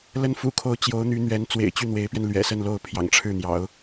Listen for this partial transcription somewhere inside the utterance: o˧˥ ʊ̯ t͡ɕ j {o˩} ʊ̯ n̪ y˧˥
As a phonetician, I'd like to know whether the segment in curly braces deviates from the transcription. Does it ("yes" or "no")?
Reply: yes